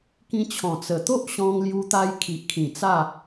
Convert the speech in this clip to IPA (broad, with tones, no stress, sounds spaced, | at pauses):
k ĩ˧ t͡ɕʰ ɔ̃˨˩ t͡s ə˨˩ t̪ o˦ ʔ ɕ ɔ̃˧ ŋ l j u˧ t̪ a˧ j kʰ i˨ ʔ kʰ ĩ˨˩ t͡s a˥˧